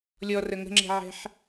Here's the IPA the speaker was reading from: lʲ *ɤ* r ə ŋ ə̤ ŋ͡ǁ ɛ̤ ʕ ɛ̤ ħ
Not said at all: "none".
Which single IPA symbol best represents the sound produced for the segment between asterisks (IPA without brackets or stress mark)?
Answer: ɔ